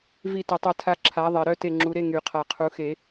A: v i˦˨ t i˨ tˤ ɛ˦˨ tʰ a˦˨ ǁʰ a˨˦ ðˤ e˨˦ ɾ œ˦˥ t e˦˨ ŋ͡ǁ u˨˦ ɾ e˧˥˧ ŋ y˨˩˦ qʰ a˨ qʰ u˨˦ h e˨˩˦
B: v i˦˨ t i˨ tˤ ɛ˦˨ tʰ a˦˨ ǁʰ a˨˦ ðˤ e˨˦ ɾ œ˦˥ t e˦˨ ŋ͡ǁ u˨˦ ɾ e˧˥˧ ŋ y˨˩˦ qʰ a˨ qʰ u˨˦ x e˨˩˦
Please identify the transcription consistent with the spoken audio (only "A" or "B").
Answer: B